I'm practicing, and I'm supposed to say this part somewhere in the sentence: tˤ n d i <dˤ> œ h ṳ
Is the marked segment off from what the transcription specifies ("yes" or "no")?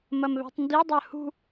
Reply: no